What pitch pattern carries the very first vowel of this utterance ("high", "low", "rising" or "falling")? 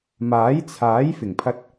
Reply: rising